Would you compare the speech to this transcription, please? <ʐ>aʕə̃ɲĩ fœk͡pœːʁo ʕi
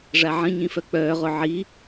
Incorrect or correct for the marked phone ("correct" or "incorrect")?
correct